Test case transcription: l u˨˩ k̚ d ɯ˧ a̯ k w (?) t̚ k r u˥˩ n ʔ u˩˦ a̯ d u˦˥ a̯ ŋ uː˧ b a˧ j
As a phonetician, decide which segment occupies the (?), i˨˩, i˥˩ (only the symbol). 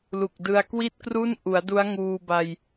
i˥˩